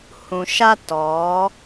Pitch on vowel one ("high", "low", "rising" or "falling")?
low